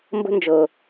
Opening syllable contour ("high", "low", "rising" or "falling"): high